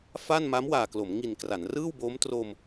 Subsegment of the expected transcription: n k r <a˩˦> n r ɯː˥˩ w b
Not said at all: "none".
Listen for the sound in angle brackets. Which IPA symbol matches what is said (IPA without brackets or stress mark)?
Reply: a˩˦